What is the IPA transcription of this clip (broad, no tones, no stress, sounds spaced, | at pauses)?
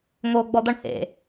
ŋ oː ɡ͡b ɔ d̪ ɔ ɳ h ḛ